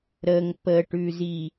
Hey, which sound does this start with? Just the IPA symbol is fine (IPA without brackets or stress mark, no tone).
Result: ɾ